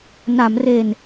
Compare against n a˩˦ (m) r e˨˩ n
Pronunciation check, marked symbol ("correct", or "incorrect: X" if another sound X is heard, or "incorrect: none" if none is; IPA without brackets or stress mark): correct